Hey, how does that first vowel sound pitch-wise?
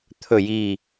falling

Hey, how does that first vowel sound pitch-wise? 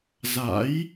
rising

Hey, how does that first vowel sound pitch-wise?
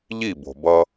falling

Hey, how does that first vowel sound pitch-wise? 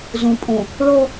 low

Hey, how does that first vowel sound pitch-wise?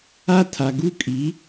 high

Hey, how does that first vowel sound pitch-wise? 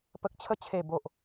low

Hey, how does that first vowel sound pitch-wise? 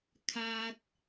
low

